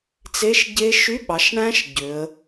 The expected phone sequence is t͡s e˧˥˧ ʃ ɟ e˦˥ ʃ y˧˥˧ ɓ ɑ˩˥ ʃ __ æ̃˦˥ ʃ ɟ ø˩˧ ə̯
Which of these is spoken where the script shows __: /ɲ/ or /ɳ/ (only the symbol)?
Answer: ɳ